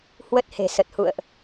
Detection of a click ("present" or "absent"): absent